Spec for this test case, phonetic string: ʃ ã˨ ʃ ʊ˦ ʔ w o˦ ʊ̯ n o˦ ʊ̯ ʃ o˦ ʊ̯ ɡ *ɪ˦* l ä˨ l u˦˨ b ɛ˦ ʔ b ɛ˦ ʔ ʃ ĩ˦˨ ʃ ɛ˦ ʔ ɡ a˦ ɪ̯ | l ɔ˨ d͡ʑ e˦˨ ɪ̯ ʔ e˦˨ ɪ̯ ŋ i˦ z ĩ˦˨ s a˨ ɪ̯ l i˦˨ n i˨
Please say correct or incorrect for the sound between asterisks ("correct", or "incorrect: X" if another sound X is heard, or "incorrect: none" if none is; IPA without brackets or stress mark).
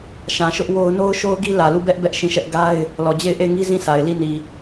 incorrect: i˦